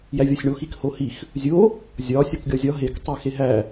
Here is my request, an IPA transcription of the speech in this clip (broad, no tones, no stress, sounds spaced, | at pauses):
j æ vʲ ɒ sʲ ɳ o x i k h o h i x | zʲ o | zʲ ɒ sʲ ɒ k ɡʲ ɒ zʲ ɒ ɦ e k tˤ i x e ɦ æ